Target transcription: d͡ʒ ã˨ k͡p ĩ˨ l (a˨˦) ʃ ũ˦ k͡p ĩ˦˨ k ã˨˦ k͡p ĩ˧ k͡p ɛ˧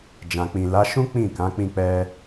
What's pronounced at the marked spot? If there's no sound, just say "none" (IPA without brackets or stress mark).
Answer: a˨˦